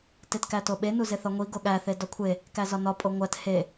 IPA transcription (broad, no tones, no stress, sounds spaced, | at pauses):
t e t k æ t o ɓ e n u z e θ ɒ ŋʷ i ɡ o ɠ æ θ e d ɒ kʷʰ e | k æ z ɒ n ɒ pʼ o ŋʷ æ t h e